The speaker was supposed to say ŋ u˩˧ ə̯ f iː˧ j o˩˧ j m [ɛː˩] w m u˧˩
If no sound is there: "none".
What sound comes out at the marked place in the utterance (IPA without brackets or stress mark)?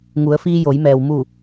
ɛː˩